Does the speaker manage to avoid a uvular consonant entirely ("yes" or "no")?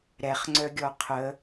no